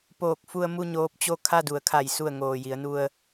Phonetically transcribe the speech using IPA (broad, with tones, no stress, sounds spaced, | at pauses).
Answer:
p oː˧˩ k̚ f u˧ ə̯ m u˥˨ ɲ oː˧ p̚ t͡ɕ o˥˨ kʰ a˥˨ d u˩˧ ə̯ kʰ a˧˩ j s u˧˩ ə̯ ŋ oː˩ j i˩˧ ə̯ n u˧ ə̯